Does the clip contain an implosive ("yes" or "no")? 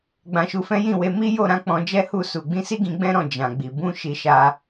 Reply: no